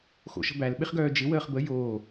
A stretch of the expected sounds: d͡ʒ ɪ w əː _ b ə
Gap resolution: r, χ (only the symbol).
χ